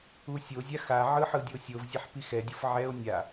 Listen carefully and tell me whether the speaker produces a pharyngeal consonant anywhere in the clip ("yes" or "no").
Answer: yes